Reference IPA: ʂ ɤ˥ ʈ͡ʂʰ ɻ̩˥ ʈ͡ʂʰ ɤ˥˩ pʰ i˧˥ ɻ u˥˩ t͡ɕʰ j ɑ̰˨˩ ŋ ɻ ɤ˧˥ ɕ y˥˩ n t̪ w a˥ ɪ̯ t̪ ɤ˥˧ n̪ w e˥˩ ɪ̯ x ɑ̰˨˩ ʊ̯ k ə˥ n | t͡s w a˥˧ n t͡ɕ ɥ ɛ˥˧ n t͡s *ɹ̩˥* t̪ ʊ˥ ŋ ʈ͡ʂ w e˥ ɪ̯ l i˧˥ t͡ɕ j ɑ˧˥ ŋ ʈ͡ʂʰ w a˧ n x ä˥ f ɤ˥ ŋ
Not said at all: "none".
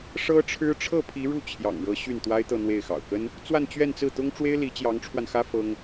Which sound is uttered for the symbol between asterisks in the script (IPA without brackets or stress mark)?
ɹ̩˥˩